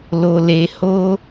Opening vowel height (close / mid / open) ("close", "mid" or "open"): mid